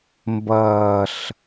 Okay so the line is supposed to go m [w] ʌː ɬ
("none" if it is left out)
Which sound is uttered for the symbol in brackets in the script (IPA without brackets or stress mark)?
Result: b